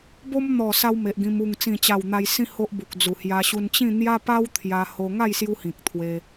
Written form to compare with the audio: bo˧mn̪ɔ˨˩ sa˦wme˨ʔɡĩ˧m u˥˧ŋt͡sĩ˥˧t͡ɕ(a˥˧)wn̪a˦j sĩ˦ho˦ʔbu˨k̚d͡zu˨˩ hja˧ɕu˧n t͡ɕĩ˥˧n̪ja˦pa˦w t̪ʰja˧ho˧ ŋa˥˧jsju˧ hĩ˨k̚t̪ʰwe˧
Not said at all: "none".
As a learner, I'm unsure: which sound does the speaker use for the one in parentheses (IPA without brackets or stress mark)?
a˥˧